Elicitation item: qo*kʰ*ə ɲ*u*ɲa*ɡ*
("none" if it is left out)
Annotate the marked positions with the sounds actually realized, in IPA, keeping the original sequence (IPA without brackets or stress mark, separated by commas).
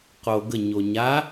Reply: ɡ, o, none